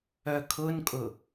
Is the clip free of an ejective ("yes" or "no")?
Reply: no